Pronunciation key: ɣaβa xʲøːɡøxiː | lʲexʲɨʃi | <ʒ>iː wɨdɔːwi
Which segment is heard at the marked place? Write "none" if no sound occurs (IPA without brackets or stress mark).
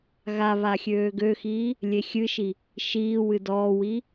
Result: ʃ